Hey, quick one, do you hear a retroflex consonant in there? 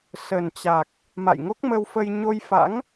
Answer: no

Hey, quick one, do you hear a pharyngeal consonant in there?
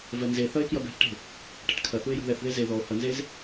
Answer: no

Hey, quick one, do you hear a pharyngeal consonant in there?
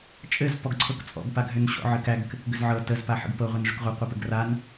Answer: yes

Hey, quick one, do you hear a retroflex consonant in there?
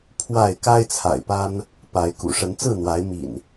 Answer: yes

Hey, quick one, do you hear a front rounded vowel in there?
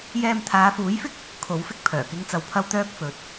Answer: yes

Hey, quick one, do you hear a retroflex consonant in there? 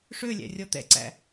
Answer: yes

